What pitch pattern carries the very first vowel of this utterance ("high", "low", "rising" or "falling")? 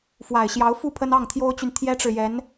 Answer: low